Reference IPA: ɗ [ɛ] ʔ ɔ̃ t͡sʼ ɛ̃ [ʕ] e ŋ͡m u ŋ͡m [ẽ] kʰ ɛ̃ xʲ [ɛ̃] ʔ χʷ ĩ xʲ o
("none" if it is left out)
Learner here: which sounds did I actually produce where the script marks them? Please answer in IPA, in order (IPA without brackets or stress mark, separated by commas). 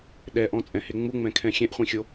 ɛ, h, ɛ̃, ɛ̃